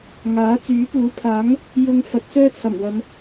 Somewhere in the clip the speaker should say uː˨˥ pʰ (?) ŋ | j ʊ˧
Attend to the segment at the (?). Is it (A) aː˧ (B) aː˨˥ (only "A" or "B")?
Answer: B